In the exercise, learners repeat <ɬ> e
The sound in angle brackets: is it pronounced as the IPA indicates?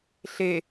yes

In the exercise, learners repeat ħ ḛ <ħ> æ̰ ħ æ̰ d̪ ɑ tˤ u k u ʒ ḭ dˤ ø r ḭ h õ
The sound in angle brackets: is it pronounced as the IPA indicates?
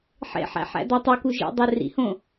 yes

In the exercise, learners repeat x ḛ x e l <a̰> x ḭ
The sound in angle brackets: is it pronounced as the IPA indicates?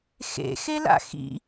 yes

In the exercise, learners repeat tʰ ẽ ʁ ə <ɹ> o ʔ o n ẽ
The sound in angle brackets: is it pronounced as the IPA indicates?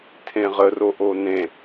no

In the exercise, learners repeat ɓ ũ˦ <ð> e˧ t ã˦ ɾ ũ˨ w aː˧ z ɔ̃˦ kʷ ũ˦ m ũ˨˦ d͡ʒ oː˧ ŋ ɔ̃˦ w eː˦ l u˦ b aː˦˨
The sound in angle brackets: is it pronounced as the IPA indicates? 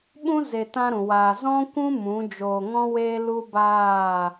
no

